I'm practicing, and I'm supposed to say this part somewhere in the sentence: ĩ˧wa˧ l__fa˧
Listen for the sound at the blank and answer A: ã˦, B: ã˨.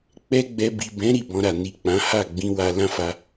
A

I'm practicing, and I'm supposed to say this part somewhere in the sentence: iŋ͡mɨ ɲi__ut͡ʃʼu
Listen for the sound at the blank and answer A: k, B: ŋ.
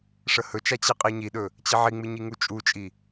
B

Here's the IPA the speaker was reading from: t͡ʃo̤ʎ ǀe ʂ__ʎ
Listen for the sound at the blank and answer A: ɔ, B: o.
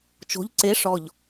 A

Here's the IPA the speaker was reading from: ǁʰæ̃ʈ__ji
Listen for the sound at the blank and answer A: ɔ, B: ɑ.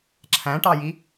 B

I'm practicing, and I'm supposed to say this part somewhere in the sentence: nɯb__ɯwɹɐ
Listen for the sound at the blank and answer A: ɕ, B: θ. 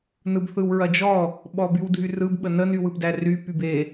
B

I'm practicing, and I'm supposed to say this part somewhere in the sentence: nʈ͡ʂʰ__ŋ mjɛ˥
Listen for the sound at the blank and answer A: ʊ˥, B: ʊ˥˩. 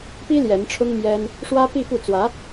A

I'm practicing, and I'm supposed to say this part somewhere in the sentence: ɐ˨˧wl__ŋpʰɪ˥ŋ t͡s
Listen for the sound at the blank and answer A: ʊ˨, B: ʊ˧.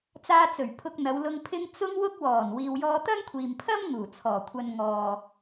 B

